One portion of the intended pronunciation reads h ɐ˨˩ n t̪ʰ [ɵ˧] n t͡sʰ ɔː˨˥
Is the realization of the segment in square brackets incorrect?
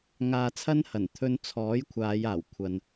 no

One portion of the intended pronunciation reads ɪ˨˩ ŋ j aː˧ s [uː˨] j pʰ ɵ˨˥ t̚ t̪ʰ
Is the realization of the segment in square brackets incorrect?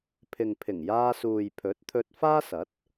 no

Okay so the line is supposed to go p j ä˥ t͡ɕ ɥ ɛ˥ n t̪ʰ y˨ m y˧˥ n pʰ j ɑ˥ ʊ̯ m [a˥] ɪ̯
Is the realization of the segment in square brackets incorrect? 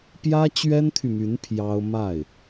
yes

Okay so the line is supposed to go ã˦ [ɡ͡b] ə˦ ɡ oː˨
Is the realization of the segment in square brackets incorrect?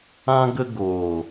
yes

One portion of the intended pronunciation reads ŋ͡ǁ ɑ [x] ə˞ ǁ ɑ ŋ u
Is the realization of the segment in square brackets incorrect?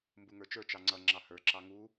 yes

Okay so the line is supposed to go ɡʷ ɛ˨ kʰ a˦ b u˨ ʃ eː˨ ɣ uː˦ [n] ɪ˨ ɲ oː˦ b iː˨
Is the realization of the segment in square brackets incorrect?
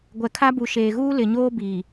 yes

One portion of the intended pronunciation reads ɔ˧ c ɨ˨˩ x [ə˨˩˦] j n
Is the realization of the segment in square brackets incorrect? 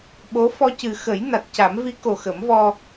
no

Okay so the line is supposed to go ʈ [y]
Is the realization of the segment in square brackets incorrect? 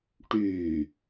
no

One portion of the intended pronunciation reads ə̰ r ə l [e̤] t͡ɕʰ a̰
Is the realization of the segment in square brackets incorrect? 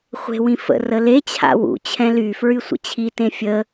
yes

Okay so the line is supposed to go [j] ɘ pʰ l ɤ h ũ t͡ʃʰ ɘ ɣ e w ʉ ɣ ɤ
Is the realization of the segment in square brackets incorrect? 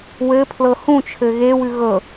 yes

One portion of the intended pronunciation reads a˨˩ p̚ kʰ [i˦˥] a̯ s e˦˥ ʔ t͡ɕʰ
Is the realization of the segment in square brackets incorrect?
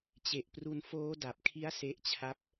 no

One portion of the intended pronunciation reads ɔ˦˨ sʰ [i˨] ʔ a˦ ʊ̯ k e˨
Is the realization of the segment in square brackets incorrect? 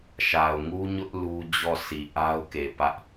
no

